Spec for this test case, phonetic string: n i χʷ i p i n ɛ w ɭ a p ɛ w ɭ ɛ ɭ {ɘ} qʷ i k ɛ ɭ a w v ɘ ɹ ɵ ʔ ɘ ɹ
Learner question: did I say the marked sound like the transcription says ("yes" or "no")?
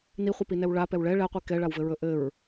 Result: no